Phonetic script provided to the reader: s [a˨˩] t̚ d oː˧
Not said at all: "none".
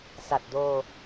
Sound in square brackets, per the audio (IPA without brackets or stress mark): a˨˩